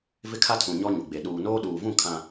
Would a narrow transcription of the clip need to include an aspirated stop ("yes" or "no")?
yes